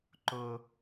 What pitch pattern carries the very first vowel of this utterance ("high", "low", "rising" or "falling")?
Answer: high